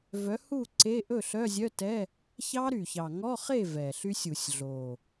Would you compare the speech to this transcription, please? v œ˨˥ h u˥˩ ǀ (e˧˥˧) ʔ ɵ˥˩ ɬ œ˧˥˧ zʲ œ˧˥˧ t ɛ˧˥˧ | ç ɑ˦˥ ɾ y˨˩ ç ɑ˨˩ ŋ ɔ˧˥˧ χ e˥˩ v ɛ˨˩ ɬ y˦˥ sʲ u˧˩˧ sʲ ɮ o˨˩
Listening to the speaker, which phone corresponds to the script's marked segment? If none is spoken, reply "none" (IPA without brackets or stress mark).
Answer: e˧˥˧